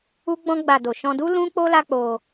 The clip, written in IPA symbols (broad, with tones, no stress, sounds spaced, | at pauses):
u˦ ɡ͡b ɔ̃˦ ɡ͡b a˧ d o˨ ʃ ɔ̃˧ d u˦ l ũ˦ k͡p o˦ l a˦ k͡p o˧